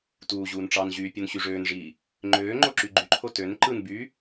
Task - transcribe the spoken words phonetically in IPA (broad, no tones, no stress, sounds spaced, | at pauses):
t uː ʑ uː n ʈ͡ʂ ɑ n ʑ yː pʲ u n ɕ y ʐ øː n ʐ iː | ŋ͡ǃ øː ŋ͡ǃ o ǁ y ɡ͡ǃ y ǃʰ o t ø n ǃ ɯ n b yː